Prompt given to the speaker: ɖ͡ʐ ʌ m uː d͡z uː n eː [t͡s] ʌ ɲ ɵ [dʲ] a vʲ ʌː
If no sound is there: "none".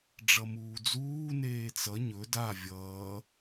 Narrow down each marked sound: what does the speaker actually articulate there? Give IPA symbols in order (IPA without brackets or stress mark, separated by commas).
t͡s, d